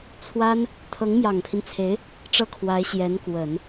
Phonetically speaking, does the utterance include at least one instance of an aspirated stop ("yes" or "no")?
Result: yes